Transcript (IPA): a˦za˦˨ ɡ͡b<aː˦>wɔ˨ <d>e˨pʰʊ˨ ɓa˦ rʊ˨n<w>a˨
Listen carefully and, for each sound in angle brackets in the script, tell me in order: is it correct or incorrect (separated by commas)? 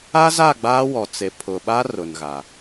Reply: correct, incorrect, incorrect